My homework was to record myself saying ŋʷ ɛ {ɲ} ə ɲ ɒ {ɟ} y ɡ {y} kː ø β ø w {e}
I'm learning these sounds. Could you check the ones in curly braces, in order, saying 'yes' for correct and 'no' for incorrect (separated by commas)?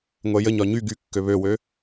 no, no, yes, no